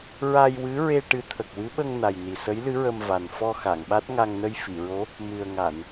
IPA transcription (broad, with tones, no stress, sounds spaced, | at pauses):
ɹ a˧ j w ɨ˧˥ ɹ e˧ ʈ ɨ˧˥ t̪ʰ ə˨˩ k̚ w ɨ˧˥ ɓ ə˧ ŋ n a˨˩ j n i˨˩ s ə˧˥ j l ɨ˧˥ ɹ ə˧ m v a˨˩ n f ɔ˧ x a˨˩˨ ŋ ɓ a˦˥ t̚ ŋ a˧ ŋ n ə˧ j f i˨˩˨ ɹ o˧˥ | m ɨ˨˩ ə̯ ŋ a˨˩˨ n